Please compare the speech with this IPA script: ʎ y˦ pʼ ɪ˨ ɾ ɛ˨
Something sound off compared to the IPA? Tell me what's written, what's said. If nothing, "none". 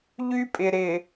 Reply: ɛ˨ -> ɪ˨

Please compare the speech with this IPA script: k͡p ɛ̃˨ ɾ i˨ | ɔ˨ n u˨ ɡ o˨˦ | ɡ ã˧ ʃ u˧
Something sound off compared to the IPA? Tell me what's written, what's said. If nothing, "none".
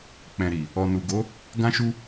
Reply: none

